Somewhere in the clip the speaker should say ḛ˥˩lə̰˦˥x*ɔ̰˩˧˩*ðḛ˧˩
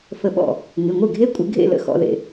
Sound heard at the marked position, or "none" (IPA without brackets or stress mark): ɔ̰˩˧˩